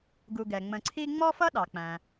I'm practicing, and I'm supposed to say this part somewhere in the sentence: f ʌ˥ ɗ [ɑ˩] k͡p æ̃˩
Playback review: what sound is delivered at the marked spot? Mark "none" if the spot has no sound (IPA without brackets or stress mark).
ɑ˩